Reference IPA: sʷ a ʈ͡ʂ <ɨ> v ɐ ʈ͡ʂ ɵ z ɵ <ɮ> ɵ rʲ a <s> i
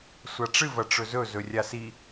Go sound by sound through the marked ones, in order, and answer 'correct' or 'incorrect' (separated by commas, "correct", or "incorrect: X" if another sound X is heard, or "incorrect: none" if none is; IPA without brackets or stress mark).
correct, incorrect: z, correct